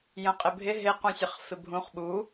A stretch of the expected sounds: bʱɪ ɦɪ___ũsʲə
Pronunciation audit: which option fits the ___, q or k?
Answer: q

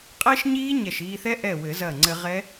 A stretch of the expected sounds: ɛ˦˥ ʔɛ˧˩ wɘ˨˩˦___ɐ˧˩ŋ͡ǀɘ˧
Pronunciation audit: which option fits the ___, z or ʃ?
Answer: z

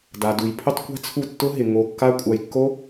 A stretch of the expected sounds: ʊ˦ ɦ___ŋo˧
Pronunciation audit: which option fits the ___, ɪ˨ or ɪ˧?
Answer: ɪ˨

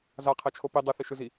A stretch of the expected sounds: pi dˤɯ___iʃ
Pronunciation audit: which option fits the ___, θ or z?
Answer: θ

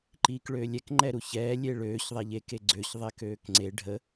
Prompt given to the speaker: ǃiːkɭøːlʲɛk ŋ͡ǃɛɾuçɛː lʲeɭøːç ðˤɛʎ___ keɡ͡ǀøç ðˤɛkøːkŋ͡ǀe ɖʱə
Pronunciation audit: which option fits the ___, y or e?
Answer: e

